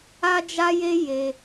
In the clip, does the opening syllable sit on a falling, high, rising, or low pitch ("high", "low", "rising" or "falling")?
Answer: high